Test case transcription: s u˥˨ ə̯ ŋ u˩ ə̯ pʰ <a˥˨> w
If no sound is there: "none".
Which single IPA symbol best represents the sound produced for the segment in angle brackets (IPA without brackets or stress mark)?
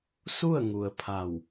a˧˩